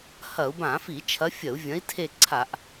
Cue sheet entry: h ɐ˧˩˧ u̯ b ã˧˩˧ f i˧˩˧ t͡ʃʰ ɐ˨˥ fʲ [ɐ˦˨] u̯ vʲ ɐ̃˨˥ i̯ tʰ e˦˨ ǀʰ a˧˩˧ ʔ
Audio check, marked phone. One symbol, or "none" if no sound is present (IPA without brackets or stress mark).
ɐ˧˩˧